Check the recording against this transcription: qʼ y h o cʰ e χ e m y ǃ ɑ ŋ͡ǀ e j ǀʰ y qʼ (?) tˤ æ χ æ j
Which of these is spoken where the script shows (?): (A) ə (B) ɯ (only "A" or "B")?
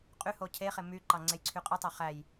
B